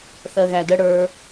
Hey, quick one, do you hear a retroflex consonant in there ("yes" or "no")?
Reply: yes